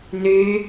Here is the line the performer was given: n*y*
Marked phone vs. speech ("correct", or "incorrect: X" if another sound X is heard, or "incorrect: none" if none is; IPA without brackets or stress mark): correct